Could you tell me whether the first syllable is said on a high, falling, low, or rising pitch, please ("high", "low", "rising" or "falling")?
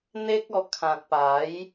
high